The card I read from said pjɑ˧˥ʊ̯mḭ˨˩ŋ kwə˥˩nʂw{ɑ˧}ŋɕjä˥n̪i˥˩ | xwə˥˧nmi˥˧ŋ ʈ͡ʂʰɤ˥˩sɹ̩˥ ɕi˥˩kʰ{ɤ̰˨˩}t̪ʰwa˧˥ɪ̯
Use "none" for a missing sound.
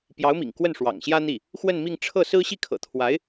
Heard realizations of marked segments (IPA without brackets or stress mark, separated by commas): ɑ̰˨˩, ɤ̰˨˩